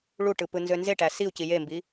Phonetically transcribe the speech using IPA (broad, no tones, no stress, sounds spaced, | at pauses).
ɭ u ʈ ɯ p ɯ n z ø n z e ʈ æ s i u̯ c i j e m b i